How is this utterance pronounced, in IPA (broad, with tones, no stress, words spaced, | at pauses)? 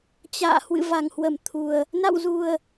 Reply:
t͡ɕa̰ː˧˨ hwɨ̰˧˨va˨˩ŋhwə˧˩m t̪ʰu˨˩ə̯ | na̰˧˨wzu˨˩ə̯